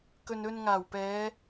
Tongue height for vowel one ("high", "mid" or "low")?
mid